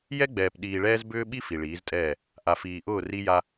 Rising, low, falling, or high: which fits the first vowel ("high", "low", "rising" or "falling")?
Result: high